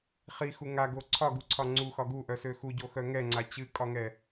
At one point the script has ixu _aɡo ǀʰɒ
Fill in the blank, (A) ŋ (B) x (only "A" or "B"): A